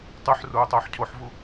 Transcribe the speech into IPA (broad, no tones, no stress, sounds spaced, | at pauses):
tˤ ʉ ħ r uː tˤ ʊː ħ cʰ o ħ v u